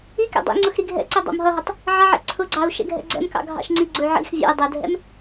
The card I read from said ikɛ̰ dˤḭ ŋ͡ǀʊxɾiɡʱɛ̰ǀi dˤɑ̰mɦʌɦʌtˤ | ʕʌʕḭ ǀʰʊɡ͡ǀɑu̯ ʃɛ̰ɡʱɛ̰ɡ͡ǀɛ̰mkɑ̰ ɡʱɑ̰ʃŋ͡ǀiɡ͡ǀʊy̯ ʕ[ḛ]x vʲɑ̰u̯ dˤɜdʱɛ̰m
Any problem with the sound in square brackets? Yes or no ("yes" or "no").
yes